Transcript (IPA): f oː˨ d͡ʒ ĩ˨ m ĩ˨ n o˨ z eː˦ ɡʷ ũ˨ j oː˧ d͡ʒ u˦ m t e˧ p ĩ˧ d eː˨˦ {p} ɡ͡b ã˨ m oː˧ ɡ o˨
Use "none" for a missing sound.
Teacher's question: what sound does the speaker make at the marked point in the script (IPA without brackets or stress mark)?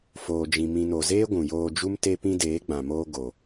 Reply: none